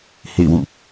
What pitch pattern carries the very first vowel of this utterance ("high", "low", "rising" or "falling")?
falling